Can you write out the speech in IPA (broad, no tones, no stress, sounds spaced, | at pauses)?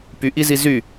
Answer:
p y ʔ i z i z y